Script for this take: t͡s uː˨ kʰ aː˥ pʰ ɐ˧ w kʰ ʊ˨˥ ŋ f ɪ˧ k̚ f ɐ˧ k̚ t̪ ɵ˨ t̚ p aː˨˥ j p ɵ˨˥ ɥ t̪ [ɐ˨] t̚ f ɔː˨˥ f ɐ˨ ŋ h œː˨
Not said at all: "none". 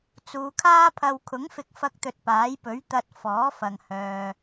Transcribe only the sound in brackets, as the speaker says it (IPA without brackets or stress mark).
ɐ˧